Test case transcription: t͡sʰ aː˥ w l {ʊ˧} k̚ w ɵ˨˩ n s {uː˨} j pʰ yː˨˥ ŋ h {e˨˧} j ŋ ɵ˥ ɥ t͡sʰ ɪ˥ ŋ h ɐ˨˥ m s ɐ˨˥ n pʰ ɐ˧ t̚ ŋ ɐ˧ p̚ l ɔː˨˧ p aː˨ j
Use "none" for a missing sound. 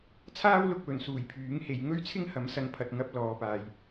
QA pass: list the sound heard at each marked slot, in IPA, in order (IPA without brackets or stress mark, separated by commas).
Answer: ʊ˧, uː˨˩, e˨˧